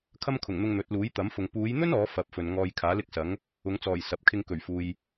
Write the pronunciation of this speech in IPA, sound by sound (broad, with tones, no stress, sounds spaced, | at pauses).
kʰ ɐ˥ m kʰ ʊ˨˩ ŋ n̪ ʊ˧ ŋ n̪ ɵ˨˥ t̚ l uː˨˥ j t̪ ɐ˨˥ m f ʊ˨ ŋ p uː˨˧ j n̪ ɵ˥ n ɔː˨˥ f ɐ˨˥ p̚ f ɵ˨ n ŋ ɔː˧ j kʰ aː˨˥ l ɪ˥ k̚ s ɐ˨˥ ŋ | ʊ˨˧ ŋ t͡s ɔː˨˩ j s ɐ˨˥ p̚ kʰ ɪ˧ ŋ k ɵ˨˩ ɥ f uː˨ j